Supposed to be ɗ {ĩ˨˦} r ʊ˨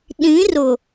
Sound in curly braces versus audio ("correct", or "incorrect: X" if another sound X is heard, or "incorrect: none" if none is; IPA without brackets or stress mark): correct